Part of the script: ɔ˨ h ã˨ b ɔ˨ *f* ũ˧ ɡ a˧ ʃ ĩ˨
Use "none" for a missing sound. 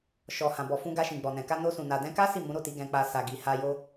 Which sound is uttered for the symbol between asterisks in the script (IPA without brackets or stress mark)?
f